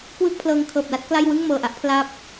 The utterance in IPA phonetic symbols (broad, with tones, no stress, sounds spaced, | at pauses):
k w ɯː˥˩ k̚ pʰ l ɤː˧ ŋ kʰ ɤː˨˩ p̚ l a˦˥ t̚ k l a˥˩ j w ɯ˥˩ ŋ m ɤː˨˩ ʔ a˦˥ ʔ pʰ l a˥˩ p̚